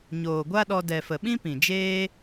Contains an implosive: yes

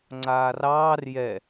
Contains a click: yes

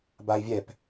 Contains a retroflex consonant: no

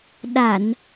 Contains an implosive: yes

